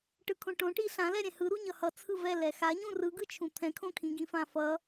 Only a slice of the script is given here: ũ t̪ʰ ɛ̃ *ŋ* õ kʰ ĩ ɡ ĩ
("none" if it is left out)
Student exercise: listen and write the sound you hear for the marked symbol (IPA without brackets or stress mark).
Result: kʰ